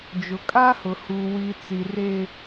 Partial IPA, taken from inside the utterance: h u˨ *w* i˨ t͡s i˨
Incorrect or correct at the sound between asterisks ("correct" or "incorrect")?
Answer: correct